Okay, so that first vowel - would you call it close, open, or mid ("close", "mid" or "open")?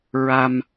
open